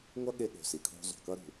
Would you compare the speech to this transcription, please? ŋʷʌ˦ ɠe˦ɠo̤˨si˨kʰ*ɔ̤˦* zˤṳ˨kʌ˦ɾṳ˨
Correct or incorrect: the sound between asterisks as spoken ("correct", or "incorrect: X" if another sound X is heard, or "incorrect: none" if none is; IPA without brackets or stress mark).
incorrect: o̤˦